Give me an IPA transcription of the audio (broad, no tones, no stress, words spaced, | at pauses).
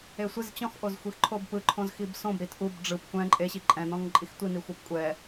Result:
esʷiz t͡ɕɔ̃xʔozxʷix ǃʰobpɯ ǃʰõzxibsõb ɾitʔub ɖ͡ʐɯp kʷɛ̃ ǃʼeɕi ǃʼɛ̃nɔ̃ŋǃʼix tʷi nixʷɤpkʷʼɛ